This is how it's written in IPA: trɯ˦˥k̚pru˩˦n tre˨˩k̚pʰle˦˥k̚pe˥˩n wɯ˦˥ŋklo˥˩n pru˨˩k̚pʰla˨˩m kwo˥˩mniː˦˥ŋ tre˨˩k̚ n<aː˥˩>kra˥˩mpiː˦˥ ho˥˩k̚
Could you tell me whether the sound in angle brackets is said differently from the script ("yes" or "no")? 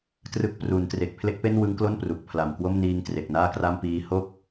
no